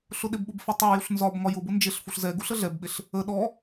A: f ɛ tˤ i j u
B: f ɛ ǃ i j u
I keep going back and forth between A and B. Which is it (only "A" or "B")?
A